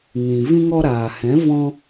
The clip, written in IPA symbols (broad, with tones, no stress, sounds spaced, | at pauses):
ŋ ĩ˨ v ĩ˧ ŋ ɔ˧ ɾ aː˨ h ɛ̃˨˦ v ɔ̃˧